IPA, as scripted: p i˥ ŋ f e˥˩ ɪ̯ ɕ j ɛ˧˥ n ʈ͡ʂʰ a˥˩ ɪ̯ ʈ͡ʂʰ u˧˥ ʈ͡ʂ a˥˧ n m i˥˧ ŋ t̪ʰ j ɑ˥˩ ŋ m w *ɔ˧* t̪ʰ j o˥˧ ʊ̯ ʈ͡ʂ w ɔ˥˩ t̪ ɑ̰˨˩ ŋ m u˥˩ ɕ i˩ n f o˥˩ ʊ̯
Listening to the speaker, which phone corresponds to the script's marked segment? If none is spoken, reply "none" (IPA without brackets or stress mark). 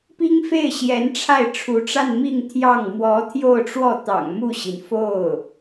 ɔ˧˥